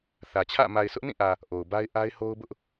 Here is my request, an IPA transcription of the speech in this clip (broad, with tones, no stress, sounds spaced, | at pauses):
θ ä˨ t͡ɕʰ ä̰˦˨ m a˨ ɪ̯ sʰ ʊ˦ ʔ n ĩ˦˨ ʔ ä˨ | ʔ o˨ ʊ̯ b a˦ ɪ̯ ʔ a˦ ɪ̯ h o˦ ʊ̯ b ʊ˦ ʔ